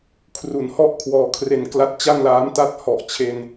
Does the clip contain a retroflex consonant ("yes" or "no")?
no